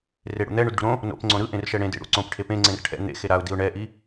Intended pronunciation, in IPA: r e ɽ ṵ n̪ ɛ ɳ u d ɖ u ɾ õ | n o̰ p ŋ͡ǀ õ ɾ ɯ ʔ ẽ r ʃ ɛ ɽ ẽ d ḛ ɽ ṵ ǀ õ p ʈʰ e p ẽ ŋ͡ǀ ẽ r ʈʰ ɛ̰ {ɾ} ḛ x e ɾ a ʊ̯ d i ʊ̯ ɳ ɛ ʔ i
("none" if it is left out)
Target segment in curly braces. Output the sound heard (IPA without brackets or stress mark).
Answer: n̪